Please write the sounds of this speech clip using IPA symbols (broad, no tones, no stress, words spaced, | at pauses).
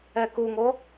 ɛkuŋo